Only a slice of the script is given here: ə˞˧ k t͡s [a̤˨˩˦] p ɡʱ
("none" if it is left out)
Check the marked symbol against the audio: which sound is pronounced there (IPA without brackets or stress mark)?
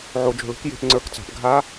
a̤˨˩˦